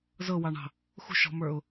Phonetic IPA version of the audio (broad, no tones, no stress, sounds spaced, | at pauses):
z ɤ w ɑ ɳ ɑ̤ | x ṳ ʃ ɔ̤ m ə˞ ʊ̯